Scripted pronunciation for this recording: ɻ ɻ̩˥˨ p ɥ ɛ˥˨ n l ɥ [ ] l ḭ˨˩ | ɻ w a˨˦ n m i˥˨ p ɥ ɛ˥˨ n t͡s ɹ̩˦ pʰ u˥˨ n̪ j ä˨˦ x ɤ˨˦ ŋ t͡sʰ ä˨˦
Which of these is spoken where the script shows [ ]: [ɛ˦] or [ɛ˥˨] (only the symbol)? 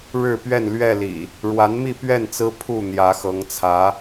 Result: ɛ˥˨